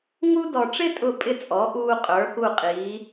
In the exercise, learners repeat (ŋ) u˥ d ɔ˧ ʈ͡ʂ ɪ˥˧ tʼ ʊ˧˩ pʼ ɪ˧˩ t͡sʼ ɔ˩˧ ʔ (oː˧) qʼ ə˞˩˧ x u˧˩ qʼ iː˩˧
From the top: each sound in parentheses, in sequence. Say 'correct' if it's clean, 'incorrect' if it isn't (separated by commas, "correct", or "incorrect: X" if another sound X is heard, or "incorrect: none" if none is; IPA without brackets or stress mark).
correct, incorrect: uː˧